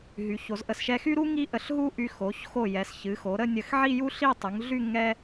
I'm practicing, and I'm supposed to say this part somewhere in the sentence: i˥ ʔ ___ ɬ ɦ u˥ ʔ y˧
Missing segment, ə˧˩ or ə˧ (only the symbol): ə˧˩